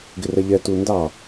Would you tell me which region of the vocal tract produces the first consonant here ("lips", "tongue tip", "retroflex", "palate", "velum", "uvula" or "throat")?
velum